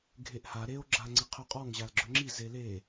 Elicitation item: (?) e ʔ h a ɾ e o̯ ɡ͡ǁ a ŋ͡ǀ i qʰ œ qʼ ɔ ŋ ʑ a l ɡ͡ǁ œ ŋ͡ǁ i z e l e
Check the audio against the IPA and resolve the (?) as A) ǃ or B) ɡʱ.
B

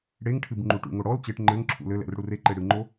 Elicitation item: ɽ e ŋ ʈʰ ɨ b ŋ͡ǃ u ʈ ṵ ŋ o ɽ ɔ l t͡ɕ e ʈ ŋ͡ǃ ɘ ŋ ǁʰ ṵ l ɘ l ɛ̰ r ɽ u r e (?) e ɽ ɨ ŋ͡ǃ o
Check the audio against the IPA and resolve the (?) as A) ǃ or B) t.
A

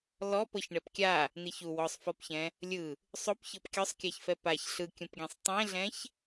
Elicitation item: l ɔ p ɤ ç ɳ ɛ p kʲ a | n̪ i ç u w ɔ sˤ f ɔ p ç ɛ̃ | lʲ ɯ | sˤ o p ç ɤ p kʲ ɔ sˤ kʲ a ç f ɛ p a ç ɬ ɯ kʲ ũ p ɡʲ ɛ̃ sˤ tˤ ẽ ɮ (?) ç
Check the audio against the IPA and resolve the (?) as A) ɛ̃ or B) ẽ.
A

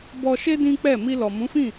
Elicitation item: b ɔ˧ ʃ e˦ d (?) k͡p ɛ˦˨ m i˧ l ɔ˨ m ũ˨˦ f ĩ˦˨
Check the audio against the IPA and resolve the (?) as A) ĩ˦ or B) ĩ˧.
A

